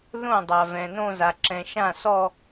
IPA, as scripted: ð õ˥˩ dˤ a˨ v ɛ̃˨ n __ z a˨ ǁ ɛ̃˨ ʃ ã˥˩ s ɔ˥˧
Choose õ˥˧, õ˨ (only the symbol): õ˥˧